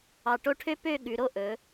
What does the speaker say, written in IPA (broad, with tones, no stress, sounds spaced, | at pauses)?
ɑ˧˩ ʈ o˥ ʈʰ ø˥ p ø˥˧ ɠ ʉ˩˧ ɾ o˥˧ ʔ ɵ˩˧